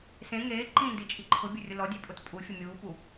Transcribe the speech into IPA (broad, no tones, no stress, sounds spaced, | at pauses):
s ẽ ŋ eː ǃ ĩ n d i t͡ʃʼ i ǃʰ ʊ bʲ ʊ rʲ ʊ l ɔ dʲ e pʼ ʊ t pʼ u fʲ ʊ mʲ uː p u